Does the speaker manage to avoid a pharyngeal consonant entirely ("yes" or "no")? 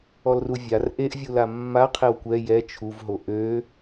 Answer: yes